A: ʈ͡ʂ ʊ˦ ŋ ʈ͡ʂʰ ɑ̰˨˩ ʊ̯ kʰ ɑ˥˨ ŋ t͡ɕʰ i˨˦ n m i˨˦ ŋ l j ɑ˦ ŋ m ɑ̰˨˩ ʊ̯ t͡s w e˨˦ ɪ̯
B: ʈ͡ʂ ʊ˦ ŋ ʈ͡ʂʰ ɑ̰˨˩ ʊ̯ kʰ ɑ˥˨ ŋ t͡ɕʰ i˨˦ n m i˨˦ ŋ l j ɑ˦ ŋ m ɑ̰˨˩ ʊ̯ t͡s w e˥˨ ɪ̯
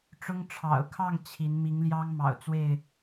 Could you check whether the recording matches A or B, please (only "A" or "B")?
B